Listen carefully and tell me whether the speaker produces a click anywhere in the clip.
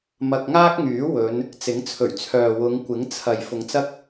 no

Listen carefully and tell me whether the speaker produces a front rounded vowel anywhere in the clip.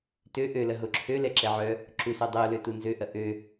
yes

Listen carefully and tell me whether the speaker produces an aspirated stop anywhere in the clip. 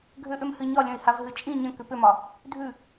no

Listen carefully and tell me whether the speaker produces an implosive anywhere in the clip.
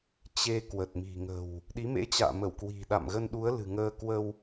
yes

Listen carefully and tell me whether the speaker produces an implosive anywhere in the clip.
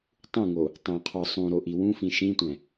no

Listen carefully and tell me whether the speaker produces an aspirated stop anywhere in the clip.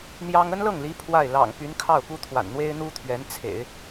yes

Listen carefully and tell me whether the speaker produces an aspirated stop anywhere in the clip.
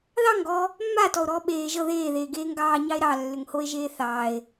no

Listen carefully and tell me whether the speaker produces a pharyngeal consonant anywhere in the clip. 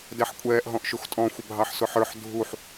yes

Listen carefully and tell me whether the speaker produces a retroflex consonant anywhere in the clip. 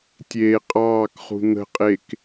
no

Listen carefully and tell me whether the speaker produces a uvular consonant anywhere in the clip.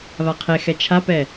yes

